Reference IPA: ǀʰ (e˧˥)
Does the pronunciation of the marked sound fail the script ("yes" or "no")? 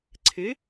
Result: yes